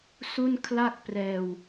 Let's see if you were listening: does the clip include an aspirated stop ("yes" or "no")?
yes